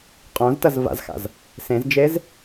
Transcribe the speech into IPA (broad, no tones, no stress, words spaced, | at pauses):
qʼõztɐz va̰zxa̰z | sẽzd͡ʒez